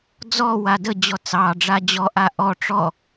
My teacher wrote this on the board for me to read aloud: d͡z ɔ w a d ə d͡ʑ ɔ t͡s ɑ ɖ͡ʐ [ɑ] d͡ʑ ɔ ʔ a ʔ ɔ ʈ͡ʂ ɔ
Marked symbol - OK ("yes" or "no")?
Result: no